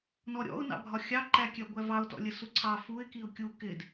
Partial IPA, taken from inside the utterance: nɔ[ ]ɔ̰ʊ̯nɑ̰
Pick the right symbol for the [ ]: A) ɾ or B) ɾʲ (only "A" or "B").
B